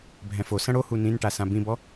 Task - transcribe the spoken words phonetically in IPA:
bʱɛ̃fosɐ̃ ɽohu nĩnʈasã bĩbɔ

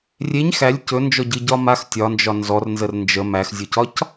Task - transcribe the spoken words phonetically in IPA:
rʲeɲ xælʲ cɵnd͡ʒɔɟɨɟɒ max tʲɒnd͡ʒɒ nzɔrnzər nd͡ʒə mæxzʲocɒc

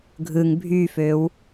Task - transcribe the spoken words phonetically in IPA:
ɡʱɯŋ bʱyføw

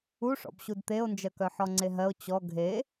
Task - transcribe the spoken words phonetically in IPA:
uʂɔ̰b ɕudt̪eo̯nd͡ʒɜkœ ħɔŋ͡ǀeɦɜo̯ t͡ɕɔ ɡʱe

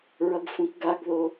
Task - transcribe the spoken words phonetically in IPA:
ɹʌɡfũkɡaɡðo

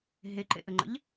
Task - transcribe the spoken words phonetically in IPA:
ɦeǃḛʔəŋ͡ǃə̰ʎ

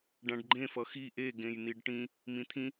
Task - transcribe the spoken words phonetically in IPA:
ɖãɖɡ͡ǃẽ fʌxi ʔe ɡẽjn̪iɖʈĩ | mĩt̪ʰĩ

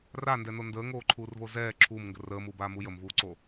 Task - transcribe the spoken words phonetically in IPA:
randɛno ndəːŋoːǃʰuːrvo zɛː ǁʰuːmŋɡə rəːmuːbaːmu jəmvuːǀo

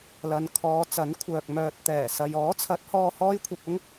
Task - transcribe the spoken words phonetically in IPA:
lɐ˨n kʰɔː˨˧ t͡sɐ˨˥nkʷʰœː˨k̚ mœː˨t̚ t̪ɛː˨˩sɐ˨j ɔː˨˥t͡sʰɐ˨˥t̚hɔː˧ hɔː˥jkʷʰɐ˧p̚ʊ˥ŋ

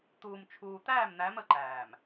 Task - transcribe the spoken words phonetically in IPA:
t̪uː˨mt͡ʃʰuː˨ t̪æː˦˨mn̪æ˨˦m ə˨ǃæː˨m

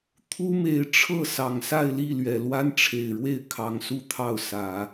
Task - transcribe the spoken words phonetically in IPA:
t̪ʰu˥me˧˥ɪ̯ʈ͡ʂʰɤ˥˩ sɑ˨˩ŋsa˥˧ɪ̯li˥˩ lɥɛ˨˩lwa˥n ʈ͡ʂʰe˨˩ɪ̯ɻwe˥˩ɪ̯ kʰɑ˧˥ŋsu˥˧t̪ʰɑ˥˩ʊ̯sä˨˩˦

